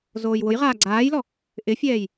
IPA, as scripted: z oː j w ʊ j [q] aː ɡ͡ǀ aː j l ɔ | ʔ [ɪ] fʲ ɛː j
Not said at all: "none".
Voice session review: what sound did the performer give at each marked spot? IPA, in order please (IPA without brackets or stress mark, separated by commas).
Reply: ʁ, ɪ